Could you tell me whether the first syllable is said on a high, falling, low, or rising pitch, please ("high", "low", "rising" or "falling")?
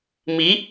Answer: rising